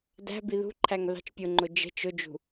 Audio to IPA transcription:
d æ̤ b i ð ṳ ǃʰ æ ŋ ð ɑ̤ t͡ʃ pʲ ʊ ŋ͡ǃ ʊ d͡ʒ ə̤ t͡ʃ ʊ d͡ʒ ṳ

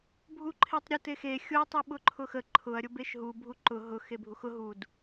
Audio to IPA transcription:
bʱ u ǃʰ e tˤ ɾʲ ʊ t e x e xʲ ʊ ɐ̯ tˤ u ɓ ʊ ǃʰ ʊ x ə ǃʰ ʊ ɐ̯ ɾʲ ʊ b e ʃ ɦ u bʱ u ǃ ʊ ɦ ʊ x e bʱ u x ʊ ɦ u d

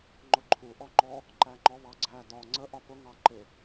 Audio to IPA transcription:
ŋ͡ǃ ʊ ǃʰ u ʔ ɔ ŋ͡ǃ ɔ | ǃ æ ŋ͡ǃ ɔ β ɑ ɡ͡ǀ æ d ɒ ŋ͡ǀ ə ʔ ɒ p ʊ ŋ ɑ ǃ ɪ

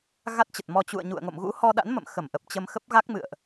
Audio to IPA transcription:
ɣ a˦˥ t̚ t͡ɕ ə˨˩ t̚ m ɔ˧ t͡ɕ ṵ˧˨ ə̯ ɲ ṵ˧˨ ə̯ ŋ o̰˧˨ m ɣ ṵ˧˥ h ɔ˧ ɗ a̰˧˥ n m ə̰˧˨ m x ə˧˩ m ʔ ə˨˩ p̚ t͡ɕ ə˧ m x ə˦˥ p̚ ɣ a˦˥ k̚ m ɨ̰˧˨ ə̯ ʔ

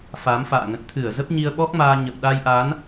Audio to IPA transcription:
f a˨˦ m f a̰ː˧˨ ŋ ə̰˧˨ n t̪ʰ ɨ˧˩ ə̯ z ə˦˥ p̚ ɲ i˧ ə̯ ɓ ɔ˦˥ k̚ m aː˧ ɲ ə̰˧˨ w ɗ a˧ j ʔ a˨˦ n

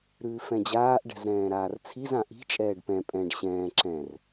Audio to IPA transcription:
ɾ ʉː f ɛ̃ d͡ʑ aː ʔ ɖ ɛ̤ z ɾ ɛ̃ː ɾ aː r t͡sʰ i z ã ʔ i̤ t͡ʃʼ ɛː ɖ p ɛ̃ pʼ ɛ̃ ɖ ɕ ɛ̃ː ǁ ɛ̃ r

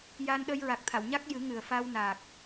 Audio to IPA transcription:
j a˧ n ɗ ə˧ j ɹ a˨˩ k̚ t̪ʰ a˨˩˨ w ɲ a˦˥ k̚ j ɨ˨˩˦ ŋ ɨ˨˩ ə̯ f a˧ w n a˨˩ k̚

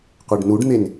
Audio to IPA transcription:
qʷ e ɖ n u ɖ n̪ e n

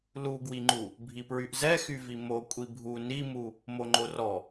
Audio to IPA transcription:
l u ɡ w i ŋ͡ǃ u | bʱ i p ɹ y ʔ z ɛ x y v i m o kʷʼ i bʱ u n i m u | m o ŋ͡ǃ o r ɔ

